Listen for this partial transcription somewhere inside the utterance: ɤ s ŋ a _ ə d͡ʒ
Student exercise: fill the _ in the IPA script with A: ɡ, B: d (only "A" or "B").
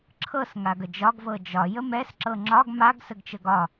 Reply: A